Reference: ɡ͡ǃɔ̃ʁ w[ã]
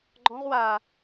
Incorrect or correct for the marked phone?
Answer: incorrect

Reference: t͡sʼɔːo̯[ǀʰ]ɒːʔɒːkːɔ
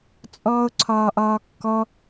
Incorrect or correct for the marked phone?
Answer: correct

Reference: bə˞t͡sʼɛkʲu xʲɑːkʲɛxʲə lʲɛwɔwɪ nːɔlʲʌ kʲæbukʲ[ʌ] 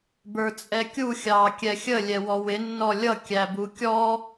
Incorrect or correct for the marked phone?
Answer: incorrect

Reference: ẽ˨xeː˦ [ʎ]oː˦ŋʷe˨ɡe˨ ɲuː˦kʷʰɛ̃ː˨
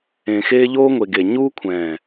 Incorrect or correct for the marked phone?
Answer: correct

